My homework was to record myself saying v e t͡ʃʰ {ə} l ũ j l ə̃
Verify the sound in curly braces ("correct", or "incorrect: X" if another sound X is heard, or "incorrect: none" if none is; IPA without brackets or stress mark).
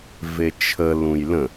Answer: correct